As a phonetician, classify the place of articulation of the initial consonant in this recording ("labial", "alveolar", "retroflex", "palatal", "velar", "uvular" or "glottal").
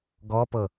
velar